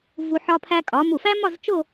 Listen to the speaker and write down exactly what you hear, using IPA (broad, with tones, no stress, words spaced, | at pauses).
vu˧ ħɒ˧pʰæ˧kʼɒ˩˧ mu˧˩fæ˥mɒ˥˧z t͡ʃo˥˧